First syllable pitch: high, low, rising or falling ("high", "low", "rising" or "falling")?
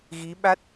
rising